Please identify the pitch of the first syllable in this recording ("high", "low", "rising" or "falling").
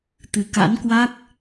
low